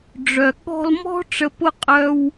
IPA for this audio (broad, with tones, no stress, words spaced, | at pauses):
ɖ͡ʐœ˨ ɠɔ̤˧lmɔ̤˦ ʈ͡ʂə˨˦pʊ˦ qʼœ˦w